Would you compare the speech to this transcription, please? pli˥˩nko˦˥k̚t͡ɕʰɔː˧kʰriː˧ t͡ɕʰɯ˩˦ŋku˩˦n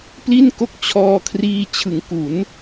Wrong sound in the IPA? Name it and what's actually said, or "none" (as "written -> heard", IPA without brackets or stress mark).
none